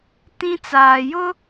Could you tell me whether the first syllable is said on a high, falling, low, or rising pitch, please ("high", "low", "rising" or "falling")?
high